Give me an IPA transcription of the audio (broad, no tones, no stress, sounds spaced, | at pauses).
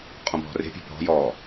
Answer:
qʼ ɔ̃ bʱ ɔ̤ r e̤ pʲ e̤ bʱ ɔ̤ j ɔː